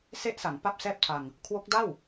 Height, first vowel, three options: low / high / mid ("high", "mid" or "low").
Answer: mid